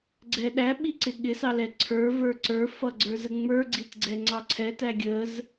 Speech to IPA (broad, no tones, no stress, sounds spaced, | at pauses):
ɡ͡ǀ ɛ ɗ æ ɓ i ǀ ɪ ɠ ɪ s ɑ l ɛ ǀʰ ə˞ v ə˞ ǀ ə˞ f ʌ ɡ͡ǀ ə˞ z ə ŋ͡m ə˞ ɡ͡ǀ i t ɡ͡ǀ ɛ ŋ͡ǀ ɑ ǀʰ ɛ t æ ɡʲ ə z